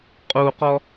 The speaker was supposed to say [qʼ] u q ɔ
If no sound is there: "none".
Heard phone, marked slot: qʼ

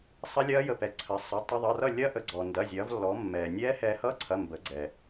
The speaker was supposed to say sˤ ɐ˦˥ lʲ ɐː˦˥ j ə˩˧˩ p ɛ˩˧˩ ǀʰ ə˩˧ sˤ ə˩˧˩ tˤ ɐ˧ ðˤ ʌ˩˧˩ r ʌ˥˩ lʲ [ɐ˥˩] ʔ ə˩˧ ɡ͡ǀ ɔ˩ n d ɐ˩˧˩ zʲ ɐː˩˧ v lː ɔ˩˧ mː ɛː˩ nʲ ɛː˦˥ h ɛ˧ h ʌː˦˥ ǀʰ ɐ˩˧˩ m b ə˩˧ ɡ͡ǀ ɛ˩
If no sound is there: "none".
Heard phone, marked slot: ɐ˦˥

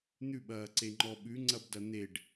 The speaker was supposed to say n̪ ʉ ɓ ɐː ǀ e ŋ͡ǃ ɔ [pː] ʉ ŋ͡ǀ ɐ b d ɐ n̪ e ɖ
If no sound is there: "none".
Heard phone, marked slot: ɓ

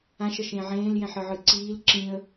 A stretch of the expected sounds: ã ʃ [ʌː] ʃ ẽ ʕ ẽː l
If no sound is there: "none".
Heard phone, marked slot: ʌ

